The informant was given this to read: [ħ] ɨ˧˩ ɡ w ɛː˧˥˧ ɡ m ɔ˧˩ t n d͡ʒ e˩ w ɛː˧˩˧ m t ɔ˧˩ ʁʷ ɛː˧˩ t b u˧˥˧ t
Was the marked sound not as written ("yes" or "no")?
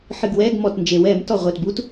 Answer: no